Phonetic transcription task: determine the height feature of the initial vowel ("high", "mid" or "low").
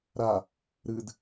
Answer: low